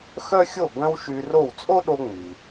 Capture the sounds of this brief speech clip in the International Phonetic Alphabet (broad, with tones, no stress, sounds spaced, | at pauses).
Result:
x œ˥ xʲ o˥˩ ɡ œ̃˥ w ʃ y˧ r o˥˩ w t͡sʼ o˥ ɗ o˧ ŋ͡m i˩